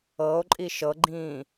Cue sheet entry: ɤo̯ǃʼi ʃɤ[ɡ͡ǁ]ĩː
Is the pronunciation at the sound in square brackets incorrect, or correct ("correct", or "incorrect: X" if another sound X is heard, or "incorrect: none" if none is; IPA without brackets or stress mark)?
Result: incorrect: ɡ͡ǃ